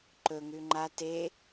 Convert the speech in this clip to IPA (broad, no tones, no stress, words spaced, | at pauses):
ǃɵ ŋʉŋ͡ǃa te